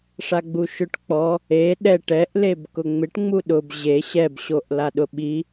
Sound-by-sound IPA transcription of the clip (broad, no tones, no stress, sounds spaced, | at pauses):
ʂ a ɡ͡b u ʃ ʊ ʈ k͡p ɔ | e ɗ ɛ ʈ ɛ ʔ l e b k ʊ ŋ͡m ɪ ʈ ŋ͡m u ɗ ʊ b ʑ e ɕ ɛ b ɕ o ʔ l a ɗ ʊ ɓ i